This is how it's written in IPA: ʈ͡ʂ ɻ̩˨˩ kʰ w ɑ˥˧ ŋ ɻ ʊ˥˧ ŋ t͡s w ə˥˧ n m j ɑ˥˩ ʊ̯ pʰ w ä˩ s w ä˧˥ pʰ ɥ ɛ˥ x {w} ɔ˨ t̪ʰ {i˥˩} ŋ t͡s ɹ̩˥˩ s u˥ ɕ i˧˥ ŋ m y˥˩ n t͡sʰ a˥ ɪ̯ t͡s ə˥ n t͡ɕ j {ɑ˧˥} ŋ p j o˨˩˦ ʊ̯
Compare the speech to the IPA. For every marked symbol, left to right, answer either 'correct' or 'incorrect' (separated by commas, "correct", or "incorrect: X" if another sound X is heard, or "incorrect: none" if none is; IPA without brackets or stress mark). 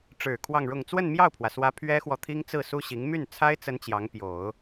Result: correct, incorrect: i˥, correct